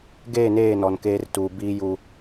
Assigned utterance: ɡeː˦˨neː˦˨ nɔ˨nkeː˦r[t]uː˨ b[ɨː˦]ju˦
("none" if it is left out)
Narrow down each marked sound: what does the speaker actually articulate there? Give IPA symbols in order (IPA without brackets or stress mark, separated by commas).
t, iː˦